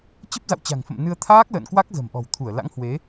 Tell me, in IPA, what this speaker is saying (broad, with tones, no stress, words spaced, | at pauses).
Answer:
t͡ɕə˦˥p̚za̰˧˨wt͡ɕa̤˨˩ŋfə̰˧˨m nɨ˧ə̯t̪ʰaː˦˥k̚ lə̰ː˧˨nkwa˦˥k̚zə̤˨˩mʔɔ̤˨˩w t̪ʰu˧˩ə̯la̰˧˥ŋhwe˨˦